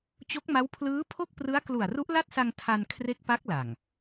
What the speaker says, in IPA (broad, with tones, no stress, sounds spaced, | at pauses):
t͡ɕ o˦˥ k̚ m a˦˥ w pʰ l ɯː˦˥ pʰ o˥˩ k̚ p r ɯ˦˥ a̯ k l u˨˩ a̯ r u˦˥ ʔ l a˥˩ t̚ s a˧ ŋ tʰ a˧ n kʰ r e˦˥ k̚ p a˦˥ k̚ l a˨˩ ŋ